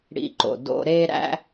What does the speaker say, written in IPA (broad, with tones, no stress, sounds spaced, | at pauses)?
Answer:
ɽ ḭ˧ ǃ o̰˨ d o̰˧ ɾ e˧ ɾ æ̰˧